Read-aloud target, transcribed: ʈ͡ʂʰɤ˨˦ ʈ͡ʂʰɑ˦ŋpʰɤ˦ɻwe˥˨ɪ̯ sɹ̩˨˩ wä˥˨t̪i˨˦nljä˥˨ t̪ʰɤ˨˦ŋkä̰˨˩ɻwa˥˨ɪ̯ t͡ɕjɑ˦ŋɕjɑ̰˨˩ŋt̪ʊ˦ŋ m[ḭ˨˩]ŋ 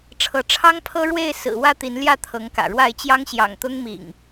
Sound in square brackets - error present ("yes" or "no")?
no